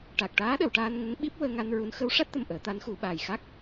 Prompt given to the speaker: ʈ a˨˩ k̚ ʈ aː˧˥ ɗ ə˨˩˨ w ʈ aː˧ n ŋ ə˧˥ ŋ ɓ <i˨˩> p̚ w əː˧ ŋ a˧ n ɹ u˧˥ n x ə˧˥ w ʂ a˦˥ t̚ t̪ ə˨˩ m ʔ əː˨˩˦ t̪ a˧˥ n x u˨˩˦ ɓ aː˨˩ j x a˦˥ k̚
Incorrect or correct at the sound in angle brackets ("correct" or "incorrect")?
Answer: incorrect